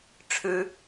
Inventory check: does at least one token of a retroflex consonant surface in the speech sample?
yes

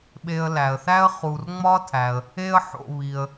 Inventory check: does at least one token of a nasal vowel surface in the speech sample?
no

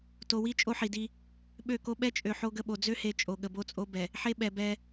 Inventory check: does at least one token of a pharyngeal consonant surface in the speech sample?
yes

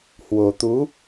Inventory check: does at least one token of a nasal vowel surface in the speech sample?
no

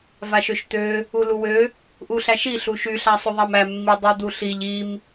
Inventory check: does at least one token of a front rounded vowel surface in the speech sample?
yes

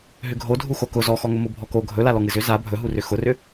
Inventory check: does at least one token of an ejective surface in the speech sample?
no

